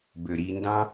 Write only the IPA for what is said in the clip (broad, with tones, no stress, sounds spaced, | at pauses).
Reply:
b ø˨ ɾ i˧ n d ɑ̃˦